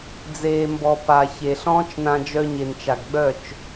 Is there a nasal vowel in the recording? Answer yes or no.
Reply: yes